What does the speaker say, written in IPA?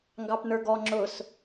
ŋ ɡ ɑ p n ə˞ ɡ ɔ ŋ͡ǁ ʊ s

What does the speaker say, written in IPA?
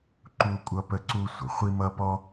ǃ u˥ kʷʼ ʌ˥ p ə˥ ǀ u˥ sʷ ə˩ χʷ i˥ m ʌ˥ p ɔ˥

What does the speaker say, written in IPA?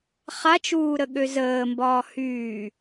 χ a t͡ʃ uː ɾ ə ɠ ø z əː m b ɒː h yː

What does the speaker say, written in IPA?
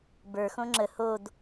b ə˞ x õ ŋ͡ǁ ə h o d

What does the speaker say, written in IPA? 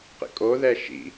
q ḭ kʼ o ð ɛ ʃ ḭ

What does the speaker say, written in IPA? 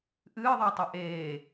ʔ ɨː ðˤ a tˤ e ʔ eː

